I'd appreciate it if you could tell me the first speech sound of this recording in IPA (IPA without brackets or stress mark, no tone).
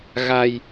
ɣ